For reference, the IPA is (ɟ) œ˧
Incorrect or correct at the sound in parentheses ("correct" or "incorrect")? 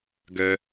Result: incorrect